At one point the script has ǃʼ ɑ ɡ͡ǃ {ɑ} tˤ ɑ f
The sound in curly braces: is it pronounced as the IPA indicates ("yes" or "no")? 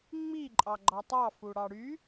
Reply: yes